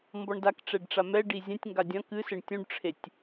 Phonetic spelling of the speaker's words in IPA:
m b ɔ ɳ d a k ʈ͡ʂ ɛ ɖ ʈ͡ʂ a m ɛ ɖ i zʲ ɛ̃ tʲ ŋ ɡ a dʲ ɐ̃ k ɨ s ɘ ɳ tʲ ũ ɖ ʈ͡ʂʰ e tʲ

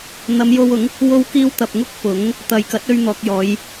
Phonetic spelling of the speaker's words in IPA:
n̪ ɐ˨˧ m j o˧ w ʊ˨˥ ŋ | w o˧ w k iː˧ w t̪ ɐ˨ p̚ ŋ ʊ˥ k̚ p ʊ˨˥ ŋ | t̪ ɐ˨ j k ɐ˨˥ t̚ ɵ˧ ɥ n̪ ɔː˨ k̚ j ɔː˨˧ j

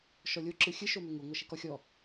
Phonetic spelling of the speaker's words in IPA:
ʃ ɔ lʲ o ǁ ɨ xʲ ɨ ʃ o m ʏ ŋ u ŋʷ ɐ ʃ i k ɔ xʲ ɔ

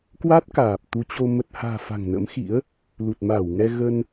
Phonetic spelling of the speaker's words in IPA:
k w a˦˥ t̚ k aː˨˩ p̚ t̪ u˨˦ t͡ɕ o˧ m ə˨˩ t̚ h a̤ː˨˩ f a̤˨˩ ŋ n ə̰˧˥ m x ḭ˧˥ ə̯ | l u˨˩ t̚ m aː˧˩ w ŋ ɛ˧ ɣ ə˧ n

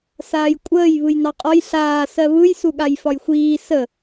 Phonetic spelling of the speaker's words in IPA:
s aː j kʷʼ əː j β ɯ j n ɑ qʼ ɒ j ɬ aː s ɜ β ɯ j s u ɠ a j f ɒ j xʷ iː s ə

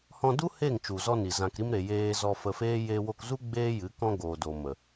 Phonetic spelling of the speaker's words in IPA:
h ɔ̃˧ d u˦ h e˦˨ ŋ t͡ʃ u˨ z ɔ˧ n i˨ z ã˧ k ɾ i˧ m ɾ e˨ j eː˧ z ɔ˧ f ə˧ f eː˦ j eː˧ w o˧ k z u˦ ɡ͡b eː˦ j ɨ˨˦ k ɔ̃˧ ɡ oː˨ d o˨ m ə˨

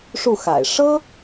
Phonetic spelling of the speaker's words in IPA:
ʂ u˥˩ x a̰˨˩ ɪ̯ ʂ ɤ˥

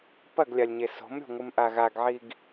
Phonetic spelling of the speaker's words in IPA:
p ɐ ɡ lʲ a lʲ ɲ e s o̤ m ɾʲ o̤ ŋʷ ɨ m ʔ a ɣ a ɡ ʕ i ɡ

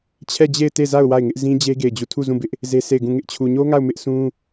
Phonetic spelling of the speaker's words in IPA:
t͡ɕʰ ɛ˦˨ d͡ʑ e˦˨ ɪ̯ t e˦˨ z a˦˨ ʊ̯ w a˦˨ ɪ̯ ŋ ɪ˦ ʔ z ĩ˦ d͡ʑ e˦ ɡ e˦˨ ɪ̯ d͡ʑ u˦˨ tʰ u˦˨ z ũ˦˨ b ɪ˦ ʔ | z e˦ s e˦˨ ɪ̯ ɡ ũ˦˨ ŋ ɪ˦ ʔ t͡ɕʰ u˨ ɲ o˦ ŋ a˦˨ ʊ̯ m ɪ˦ ʔ s ũ˦

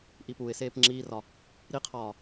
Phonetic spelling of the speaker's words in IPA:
ʔ i p u ɪ̯ s eː p ŋ͡ǁ iː r ɒ | ɾ i qʰ ɒː

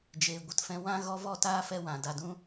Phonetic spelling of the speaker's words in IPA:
d͡ʒ eː˨ ɡʷ ə˨ t f ɛ̃˧ w ã˧ ɣ ɔ˧ v ɔ˦˨ t aː˦ f ɛ˧ w ã˨ d a˨ d ũ˧

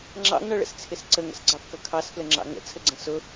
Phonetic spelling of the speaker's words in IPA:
ŋ͡ǁ ɑ̰ ŋ ɳ ʌ ɭ ə̰ s t͡sʰ ɪ s ǀ ə ŋ ə̰ s ɡ͡ǀ ɑ f k ʌ kʰ ɑ s f l ə ŋ͡ǁ ɑ̰ ŋ ə̰ t͡sʰ ə ɡ͡ǀ ə̃ s ʊ

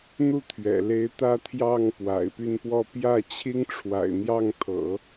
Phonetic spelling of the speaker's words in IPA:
n̪ u˥˩ t̪ʰ ɥ ɛ̰˨˩ l e˧˥ ɪ̯ t̪ ä˥ t̪ʰ j ɑ˥˩ ŋ p w a̰˨˩ ɪ̯ p y˥˧ n p w ɔ˥˧ p j ä˥˩ t͡ɕʰ i˥ ŋ ʈ͡ʂʰ w a̰˨˩ ɪ̯ n̪ j ɑ˥˩ ŋ t̪ʰ ɤ̰˨˩˦

